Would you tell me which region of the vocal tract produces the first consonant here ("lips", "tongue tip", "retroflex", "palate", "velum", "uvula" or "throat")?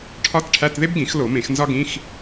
retroflex